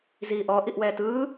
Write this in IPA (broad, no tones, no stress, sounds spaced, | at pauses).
z iː ʔ ɔ ʔ i ʔ w ɛː t ɯː